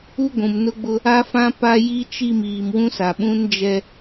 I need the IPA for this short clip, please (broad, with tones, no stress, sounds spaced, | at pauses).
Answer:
u˦ ɡʷ ũ˨ m n ʊ˦ ɡ͡b ʊ˦ | a˦ f ã˦ p a˦ j i˦ t͡ʃ i˦˨ m iː˨ m w ũ˦ s a˨ ɓ ũ˦ n d͡ʒ ɛ˦